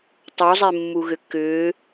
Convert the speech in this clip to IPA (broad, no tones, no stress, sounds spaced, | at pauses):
tˤ o zˤ e mː u ɣ ʏ k ʏː